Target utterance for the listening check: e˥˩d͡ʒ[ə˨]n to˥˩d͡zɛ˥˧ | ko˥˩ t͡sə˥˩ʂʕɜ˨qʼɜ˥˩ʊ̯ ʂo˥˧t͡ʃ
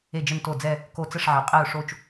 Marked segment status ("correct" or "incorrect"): incorrect